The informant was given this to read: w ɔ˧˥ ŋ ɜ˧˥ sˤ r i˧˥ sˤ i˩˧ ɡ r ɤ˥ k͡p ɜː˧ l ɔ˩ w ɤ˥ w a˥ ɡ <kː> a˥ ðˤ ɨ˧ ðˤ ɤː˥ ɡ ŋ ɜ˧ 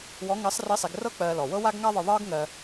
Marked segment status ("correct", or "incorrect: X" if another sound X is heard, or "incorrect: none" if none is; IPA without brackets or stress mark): incorrect: ŋ